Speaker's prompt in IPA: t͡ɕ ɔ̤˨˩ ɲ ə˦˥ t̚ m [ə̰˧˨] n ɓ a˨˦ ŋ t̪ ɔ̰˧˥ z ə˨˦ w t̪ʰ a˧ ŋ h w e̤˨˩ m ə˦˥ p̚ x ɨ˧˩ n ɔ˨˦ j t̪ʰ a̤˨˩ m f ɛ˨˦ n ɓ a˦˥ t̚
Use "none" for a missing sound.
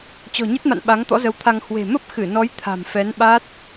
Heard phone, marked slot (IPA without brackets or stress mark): a̰˧˨